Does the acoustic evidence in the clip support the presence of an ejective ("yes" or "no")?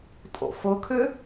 yes